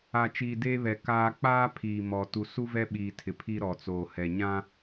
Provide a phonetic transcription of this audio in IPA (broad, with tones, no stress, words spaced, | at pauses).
a˨t͡ʃiː˨deː˦βɛ˨ kaː˦ k͡paː˦ pʰiː˨ mɔ˨ tu˨ su˦vɛ˦ɓiː˨ tʰɪ˨pʰi˦ ɾɔ˨t͡soː˨hɛ˨ɲã˦